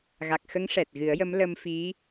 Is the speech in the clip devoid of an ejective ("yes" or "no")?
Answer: yes